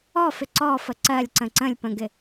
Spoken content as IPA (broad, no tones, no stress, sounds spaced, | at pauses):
ɔ f ɪ ǀ ɔ f ə ǀ ɜ lʲ ǀ ə̃ ǀ ə̃ lʲ p ə̃ ɡ ɪ